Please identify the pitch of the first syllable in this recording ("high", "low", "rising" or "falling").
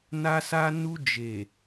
high